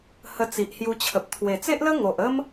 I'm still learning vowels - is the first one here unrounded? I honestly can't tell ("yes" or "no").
yes